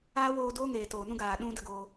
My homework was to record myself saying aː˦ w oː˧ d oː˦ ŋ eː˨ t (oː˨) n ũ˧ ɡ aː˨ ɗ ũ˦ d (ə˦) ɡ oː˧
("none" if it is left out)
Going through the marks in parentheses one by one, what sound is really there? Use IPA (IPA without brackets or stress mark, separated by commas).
oː˨, ə˧